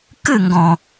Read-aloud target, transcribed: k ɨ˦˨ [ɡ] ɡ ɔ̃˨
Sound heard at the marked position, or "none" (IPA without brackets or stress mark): ŋ